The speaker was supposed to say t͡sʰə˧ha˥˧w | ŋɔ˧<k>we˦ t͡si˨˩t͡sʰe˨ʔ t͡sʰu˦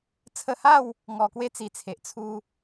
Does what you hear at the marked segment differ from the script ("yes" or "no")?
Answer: no